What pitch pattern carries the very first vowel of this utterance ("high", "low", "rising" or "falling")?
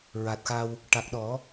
low